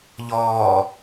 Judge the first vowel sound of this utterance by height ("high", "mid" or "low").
mid